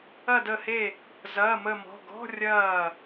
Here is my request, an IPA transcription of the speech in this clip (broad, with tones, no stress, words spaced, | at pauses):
ɐ˧˩də˧˩he˧˩ | zɐː˩˧˩mə˧˩mɔ̤˩˧˩ɡɔ̤˧˥˧ rʲɐː˧˩